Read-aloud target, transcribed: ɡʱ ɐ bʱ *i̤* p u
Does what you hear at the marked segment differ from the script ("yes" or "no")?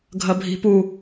no